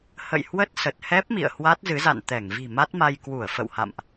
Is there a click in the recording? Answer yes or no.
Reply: no